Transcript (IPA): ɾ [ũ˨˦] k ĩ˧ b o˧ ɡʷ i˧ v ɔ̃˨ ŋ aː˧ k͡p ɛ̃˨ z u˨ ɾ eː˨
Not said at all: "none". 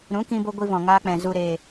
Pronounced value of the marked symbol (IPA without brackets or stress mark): ũ˨˦